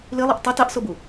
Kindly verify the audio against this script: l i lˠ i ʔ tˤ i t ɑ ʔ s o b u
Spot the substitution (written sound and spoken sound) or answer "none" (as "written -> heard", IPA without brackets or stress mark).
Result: none